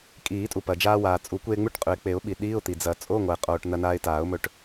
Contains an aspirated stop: no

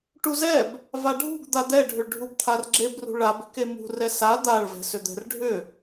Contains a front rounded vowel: yes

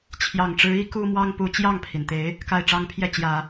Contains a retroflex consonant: yes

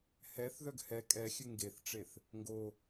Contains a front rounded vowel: yes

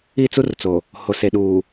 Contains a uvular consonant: no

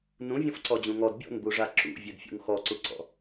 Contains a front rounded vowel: yes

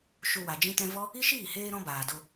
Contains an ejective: no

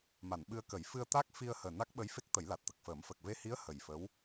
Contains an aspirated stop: no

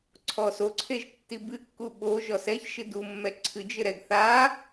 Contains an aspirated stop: yes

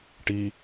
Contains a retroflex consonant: yes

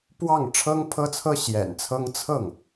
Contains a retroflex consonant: yes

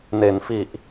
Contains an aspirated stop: no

